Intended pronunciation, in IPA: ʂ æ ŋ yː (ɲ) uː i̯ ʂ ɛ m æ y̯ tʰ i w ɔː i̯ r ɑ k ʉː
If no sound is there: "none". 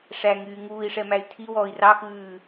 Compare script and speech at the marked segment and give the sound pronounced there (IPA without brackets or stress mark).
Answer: ŋ